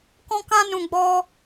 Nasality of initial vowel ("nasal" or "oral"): nasal